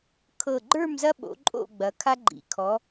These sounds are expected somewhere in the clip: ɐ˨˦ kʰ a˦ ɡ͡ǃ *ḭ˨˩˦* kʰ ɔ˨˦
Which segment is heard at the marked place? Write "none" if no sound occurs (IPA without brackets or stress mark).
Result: ḭ˨˩˦